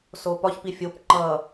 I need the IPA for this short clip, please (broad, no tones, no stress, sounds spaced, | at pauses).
s o p ɒ ç p i fʲ o p ŋ͡ǃ ʌ